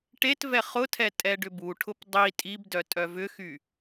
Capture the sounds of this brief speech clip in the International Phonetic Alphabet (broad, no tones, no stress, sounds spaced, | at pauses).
ʈ e t v ɛ χ ʊ tʰ ɛ tʼ ɛ ɖ ʏ b u ʈʰ ʊ p dˤ i tʼ i b d œ tʼ œ v ʏ x y